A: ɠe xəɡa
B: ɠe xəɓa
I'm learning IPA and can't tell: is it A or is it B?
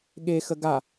A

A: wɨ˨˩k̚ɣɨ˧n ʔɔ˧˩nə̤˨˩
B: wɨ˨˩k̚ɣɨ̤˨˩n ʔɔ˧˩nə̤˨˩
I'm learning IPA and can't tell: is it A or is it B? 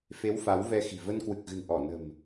B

